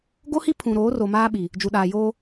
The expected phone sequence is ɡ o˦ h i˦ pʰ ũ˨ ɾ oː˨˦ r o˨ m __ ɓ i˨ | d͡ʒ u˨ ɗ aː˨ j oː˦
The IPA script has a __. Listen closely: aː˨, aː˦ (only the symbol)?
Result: aː˦